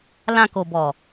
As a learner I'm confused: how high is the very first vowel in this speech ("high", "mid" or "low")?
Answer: low